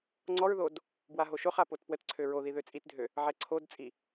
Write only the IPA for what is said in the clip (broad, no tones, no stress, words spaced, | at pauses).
ŋ͡ǀɔɹðod | bwaɦoʃoχa potpwətǀʰø ɹoði ðøt͡sʼitdʱø | ʕɛǀʰodt͡sʼi